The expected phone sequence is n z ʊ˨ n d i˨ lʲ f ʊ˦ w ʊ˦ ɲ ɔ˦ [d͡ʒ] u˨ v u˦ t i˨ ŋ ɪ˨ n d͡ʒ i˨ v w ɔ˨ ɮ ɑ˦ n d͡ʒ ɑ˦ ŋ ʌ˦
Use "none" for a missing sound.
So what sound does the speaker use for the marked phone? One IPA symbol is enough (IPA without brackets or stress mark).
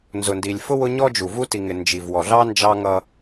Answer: d͡ʒ